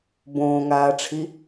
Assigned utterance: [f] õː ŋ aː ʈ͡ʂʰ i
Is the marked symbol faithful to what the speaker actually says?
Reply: no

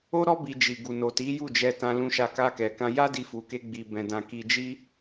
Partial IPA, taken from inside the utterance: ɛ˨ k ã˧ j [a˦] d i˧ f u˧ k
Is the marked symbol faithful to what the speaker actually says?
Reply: yes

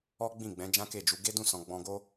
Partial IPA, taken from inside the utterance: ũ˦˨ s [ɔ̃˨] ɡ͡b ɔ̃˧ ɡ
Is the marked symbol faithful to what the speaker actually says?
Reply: yes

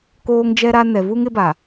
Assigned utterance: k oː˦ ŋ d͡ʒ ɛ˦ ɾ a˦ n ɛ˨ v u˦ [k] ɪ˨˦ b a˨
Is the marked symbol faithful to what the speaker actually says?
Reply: no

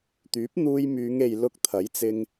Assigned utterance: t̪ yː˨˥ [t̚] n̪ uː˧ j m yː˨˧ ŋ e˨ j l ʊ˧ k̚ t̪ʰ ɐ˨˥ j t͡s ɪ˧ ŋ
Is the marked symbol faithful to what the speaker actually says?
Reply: no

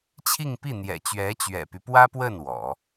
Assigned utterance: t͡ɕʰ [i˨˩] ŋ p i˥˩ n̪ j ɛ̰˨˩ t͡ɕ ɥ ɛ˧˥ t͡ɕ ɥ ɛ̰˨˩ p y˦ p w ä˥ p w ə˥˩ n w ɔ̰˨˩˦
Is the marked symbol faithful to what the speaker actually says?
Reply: no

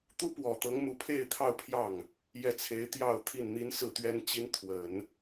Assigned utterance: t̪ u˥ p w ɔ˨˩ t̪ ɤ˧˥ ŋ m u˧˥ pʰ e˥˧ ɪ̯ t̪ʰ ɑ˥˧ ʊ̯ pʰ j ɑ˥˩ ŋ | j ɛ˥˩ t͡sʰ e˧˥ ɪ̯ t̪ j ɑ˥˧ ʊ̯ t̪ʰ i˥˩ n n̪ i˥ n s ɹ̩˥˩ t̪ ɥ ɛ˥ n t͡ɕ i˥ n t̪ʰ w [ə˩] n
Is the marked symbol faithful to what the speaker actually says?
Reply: no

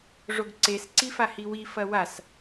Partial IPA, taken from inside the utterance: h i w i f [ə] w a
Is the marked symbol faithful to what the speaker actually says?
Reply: no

